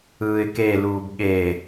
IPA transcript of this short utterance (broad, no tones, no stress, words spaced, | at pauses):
ɯːɪ̯keluːb ɠe